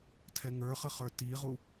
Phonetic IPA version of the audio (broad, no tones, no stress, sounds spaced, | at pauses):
tʰ ɛ ŋ ə˞ χ ə χ ə˞ t i ʁ u